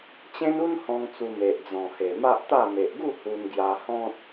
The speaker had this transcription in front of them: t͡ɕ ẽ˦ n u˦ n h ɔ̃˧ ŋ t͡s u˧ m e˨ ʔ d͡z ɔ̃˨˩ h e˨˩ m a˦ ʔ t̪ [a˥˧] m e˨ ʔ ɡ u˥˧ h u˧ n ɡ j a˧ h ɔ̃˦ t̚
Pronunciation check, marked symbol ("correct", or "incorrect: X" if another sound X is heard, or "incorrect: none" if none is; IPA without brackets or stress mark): correct